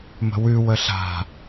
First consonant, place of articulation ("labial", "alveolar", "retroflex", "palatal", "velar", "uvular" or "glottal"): labial